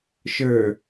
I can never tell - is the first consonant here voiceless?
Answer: yes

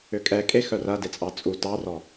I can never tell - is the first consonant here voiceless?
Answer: yes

